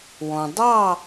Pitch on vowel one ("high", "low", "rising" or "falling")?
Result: low